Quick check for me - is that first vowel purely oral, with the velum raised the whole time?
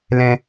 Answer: no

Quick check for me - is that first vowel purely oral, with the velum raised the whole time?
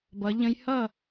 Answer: yes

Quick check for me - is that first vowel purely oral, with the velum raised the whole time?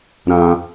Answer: no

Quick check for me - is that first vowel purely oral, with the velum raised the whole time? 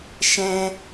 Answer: no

